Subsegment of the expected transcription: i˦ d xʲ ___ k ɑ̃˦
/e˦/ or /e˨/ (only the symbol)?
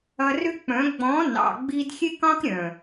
e˦